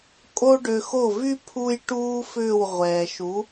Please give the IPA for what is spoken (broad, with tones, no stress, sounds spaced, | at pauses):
kʼ o˥ ɖ ø˧ x o˥˩ v y˥ pʰ u˥ j ʈ uː˥ f ʏː˥˩ w ʁʷ ɛː˩ ʃ u˩˥